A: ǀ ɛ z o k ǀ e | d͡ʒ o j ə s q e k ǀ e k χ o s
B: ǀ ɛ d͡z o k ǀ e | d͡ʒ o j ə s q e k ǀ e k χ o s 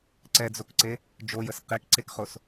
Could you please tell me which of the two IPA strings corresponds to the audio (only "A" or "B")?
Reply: B